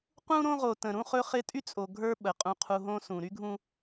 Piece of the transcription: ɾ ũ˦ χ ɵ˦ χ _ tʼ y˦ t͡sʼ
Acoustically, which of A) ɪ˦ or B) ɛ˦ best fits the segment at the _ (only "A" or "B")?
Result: A